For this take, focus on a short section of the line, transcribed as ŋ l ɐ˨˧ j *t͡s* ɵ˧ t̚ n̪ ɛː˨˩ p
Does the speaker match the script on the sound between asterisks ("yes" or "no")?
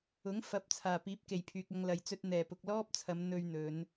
yes